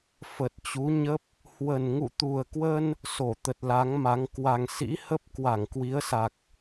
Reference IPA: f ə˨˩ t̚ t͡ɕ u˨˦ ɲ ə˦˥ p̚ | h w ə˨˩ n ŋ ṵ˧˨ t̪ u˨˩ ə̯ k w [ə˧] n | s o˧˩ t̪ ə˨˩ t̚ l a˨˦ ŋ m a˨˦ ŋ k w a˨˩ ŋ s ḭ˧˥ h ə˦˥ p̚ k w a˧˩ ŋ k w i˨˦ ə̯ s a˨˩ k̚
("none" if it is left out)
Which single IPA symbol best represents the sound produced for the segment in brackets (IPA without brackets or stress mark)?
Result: ə˧